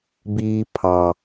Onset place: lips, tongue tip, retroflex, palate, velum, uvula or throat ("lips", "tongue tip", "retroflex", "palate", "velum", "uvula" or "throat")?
lips